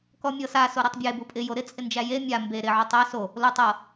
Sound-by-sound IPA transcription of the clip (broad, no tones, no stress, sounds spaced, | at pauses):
k ɔ mʲ ɤ s a s o ɾ o tˤ bʲ e b u pʼ ɪ j o ɾ ɪ t͡sʼ ɪ n d͡ʒ æ j e mʲ a m b e ɾ ɪ ʕ u tˤ æ s o | l o tˤ ɤ